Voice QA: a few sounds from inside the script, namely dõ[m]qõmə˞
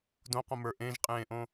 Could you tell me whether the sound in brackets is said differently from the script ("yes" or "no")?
yes